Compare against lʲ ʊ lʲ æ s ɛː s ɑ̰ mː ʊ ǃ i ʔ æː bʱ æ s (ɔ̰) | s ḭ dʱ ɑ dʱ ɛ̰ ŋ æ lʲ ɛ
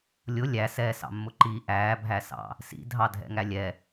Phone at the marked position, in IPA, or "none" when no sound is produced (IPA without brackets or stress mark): ɑ̰